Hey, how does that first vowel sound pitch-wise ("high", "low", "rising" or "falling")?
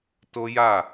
high